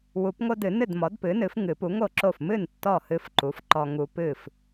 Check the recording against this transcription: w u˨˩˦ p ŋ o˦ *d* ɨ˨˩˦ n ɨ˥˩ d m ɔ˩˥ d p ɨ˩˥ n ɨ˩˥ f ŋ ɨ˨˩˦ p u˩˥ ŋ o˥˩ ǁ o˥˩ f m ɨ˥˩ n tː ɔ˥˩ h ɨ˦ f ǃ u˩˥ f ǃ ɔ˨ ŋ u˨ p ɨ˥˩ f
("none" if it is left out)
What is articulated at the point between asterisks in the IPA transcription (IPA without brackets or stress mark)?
d